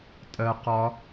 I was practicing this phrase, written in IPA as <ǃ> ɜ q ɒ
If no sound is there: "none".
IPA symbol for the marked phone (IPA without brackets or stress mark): tʼ